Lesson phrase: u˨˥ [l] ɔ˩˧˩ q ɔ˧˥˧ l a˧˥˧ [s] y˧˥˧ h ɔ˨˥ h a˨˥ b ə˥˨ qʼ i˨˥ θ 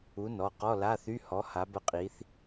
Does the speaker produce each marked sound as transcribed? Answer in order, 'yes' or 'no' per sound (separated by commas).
no, no